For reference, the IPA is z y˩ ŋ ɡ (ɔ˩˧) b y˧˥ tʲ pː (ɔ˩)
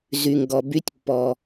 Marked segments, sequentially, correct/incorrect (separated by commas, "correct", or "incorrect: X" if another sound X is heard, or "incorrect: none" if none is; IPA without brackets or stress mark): incorrect: ɔ˩, correct